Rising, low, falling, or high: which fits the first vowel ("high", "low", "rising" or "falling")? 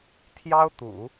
high